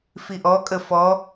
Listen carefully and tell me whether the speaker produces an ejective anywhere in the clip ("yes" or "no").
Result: yes